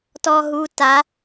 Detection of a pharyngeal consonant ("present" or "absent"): absent